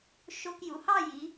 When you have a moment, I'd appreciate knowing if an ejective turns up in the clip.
no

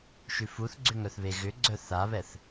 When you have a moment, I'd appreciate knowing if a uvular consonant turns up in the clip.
no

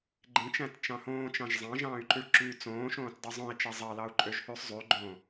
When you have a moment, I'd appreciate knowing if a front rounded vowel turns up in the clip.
yes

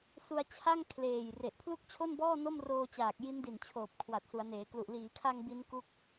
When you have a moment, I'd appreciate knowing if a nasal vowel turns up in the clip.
no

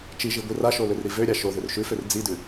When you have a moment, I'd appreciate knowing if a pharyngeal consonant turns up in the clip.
no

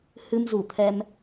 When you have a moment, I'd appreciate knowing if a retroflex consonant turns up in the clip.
no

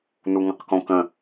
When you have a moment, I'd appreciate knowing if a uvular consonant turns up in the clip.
yes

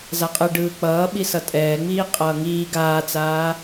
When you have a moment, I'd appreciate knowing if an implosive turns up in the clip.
yes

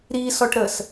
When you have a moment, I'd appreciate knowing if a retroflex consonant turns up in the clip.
yes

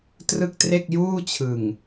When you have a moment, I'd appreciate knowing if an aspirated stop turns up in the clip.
yes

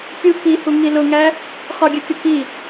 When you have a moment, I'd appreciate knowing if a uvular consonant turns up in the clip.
yes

